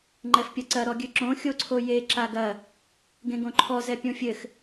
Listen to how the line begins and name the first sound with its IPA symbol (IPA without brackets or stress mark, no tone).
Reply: ŋ͡ǃ